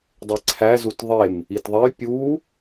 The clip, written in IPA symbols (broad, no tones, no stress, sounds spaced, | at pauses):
dˤ e ǀʰ æ z u t ðˤ e m | i t ðˤ e j pʲ u